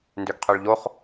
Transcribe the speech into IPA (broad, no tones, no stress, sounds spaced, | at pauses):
n d ø ɡ qʰ ø ɭ ʎ o χ